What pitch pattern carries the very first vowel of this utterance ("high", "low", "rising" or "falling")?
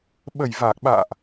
low